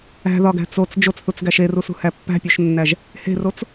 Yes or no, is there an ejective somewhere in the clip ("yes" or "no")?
no